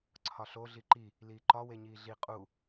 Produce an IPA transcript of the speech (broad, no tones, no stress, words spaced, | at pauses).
ǀʰɒɬo ɮiǃi | liːǃɒ weɲiːɮi qʼu